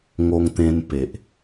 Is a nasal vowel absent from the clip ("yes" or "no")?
no